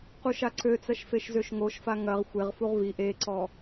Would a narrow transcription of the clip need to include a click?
yes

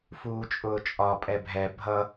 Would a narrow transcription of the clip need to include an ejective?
yes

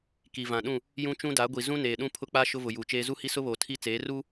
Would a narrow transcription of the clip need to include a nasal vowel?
yes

